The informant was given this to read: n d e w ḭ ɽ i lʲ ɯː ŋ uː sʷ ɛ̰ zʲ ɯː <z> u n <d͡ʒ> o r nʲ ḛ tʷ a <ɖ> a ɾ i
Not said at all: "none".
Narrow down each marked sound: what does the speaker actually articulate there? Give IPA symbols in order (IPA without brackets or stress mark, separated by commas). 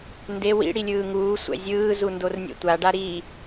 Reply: z, d, ɖ